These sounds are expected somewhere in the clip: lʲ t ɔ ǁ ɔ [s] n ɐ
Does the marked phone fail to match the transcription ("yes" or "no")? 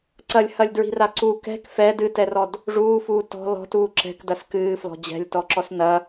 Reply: no